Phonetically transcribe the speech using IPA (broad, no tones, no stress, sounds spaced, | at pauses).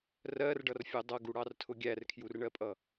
r ɜ r ɖ ʌ r fʲ ɜ dˤ ʌ ɡ u ɽ ɑ r tʰ ʊ ɡʲ æ r kʰ j u r ɳ ɜ pʼ ʌ